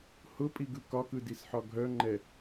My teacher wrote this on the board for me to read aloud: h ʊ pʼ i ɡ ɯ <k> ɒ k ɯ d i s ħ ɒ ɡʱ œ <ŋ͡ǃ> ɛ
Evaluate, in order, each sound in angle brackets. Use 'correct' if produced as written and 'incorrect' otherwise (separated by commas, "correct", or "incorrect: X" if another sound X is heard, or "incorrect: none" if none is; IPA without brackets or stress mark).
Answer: correct, correct